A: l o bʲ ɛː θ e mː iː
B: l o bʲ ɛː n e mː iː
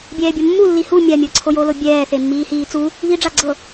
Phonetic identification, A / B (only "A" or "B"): A